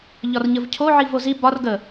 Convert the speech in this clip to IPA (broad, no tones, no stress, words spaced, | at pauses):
ʎɒrɲəvcʰo ʕivozi bɒr ɡə